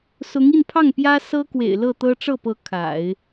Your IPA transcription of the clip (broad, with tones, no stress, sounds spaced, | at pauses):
s ʊ˧˥ ŋ i˥˧ n pʰ ɑ˥˩ ŋ p j ä˥ s ɤ˥ k w ḛ˨˩ ɪ̯ l ɤ˥˩ t̪ ɤ˥ ʈ͡ʂ ɤ˥˩ p ɤ˧˥ kʰ a̰˨˩˦ ɪ̯